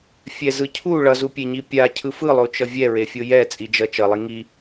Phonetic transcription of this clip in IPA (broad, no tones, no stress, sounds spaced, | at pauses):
fʲ ɛ z ɯ cʰ u ɭ ʌ z u pʲ e ɲ i pʲ a cʰ ɯ f ɯ lˠ o t͡ʃ ʌ vʲ ɛ ɹ e fʲ o j ɛ t͡sʼ i d͡ʒ ʌ t͡ʃ ʌ lˠ i ŋ i